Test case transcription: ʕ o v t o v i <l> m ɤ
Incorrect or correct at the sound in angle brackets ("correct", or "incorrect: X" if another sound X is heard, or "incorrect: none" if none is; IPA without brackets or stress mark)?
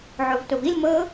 correct